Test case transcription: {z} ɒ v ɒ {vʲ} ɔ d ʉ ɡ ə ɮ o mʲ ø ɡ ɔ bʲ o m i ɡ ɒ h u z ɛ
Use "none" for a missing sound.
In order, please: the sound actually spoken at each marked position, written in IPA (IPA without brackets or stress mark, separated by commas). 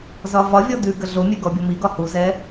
z, vʲ